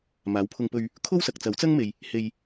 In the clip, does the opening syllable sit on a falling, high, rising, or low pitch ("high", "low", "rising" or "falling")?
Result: rising